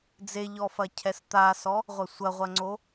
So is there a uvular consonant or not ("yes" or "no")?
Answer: yes